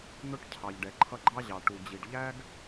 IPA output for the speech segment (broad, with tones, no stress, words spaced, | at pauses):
n̪ʊ˦ʈ cʰɑ˩ʎɖɛ˩ǃʰʌ˦ɡ͡ǃɑ˥ ʑɑ˩ ʈu˩d͡ʑi˩ɖ ʎæ˥ɡ